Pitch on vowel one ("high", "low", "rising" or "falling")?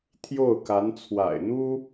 falling